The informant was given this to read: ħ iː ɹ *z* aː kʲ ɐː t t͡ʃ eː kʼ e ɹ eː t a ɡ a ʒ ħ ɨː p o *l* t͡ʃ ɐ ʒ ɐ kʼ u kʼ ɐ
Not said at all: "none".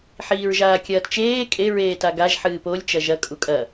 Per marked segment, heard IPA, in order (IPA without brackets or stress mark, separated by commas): ʒ, lʲ